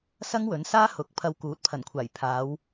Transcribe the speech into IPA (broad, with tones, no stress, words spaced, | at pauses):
sɐ˥ŋwɵ˨˥nsaː˥ hʊ˨˥k̚ pʰɐ˧wkuː˨˥t̚pʰɐ˨˩nkʷʰaː˨˩j pʰaː˨˧w